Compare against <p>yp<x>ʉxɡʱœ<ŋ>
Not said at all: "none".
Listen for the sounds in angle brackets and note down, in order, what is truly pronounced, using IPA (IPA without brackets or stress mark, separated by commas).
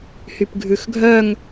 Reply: h, ɡʱ, ŋ